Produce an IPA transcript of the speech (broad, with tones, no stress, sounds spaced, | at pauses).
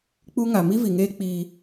k͡p u˦ ŋ a˨ m i˦ v i˨ ŋ eː˦ k͡p iː˦